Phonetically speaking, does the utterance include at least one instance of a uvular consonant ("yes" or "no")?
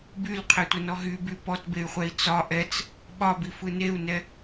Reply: yes